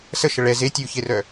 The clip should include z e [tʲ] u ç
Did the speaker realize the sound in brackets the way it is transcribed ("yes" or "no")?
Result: yes